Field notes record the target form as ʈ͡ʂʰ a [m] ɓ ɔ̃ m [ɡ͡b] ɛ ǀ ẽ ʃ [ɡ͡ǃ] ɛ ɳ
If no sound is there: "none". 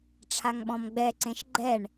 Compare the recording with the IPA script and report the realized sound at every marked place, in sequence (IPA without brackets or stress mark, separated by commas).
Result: ŋ, ɡ͡b, ɡ͡ǃ